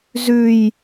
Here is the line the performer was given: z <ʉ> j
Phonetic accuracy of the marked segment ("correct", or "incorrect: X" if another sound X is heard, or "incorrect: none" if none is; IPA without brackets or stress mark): correct